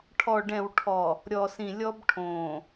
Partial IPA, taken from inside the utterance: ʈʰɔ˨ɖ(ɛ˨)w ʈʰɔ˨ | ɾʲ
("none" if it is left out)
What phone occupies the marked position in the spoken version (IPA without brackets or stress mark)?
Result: ɛ̃˨